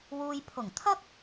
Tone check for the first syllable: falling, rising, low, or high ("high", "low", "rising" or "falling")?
low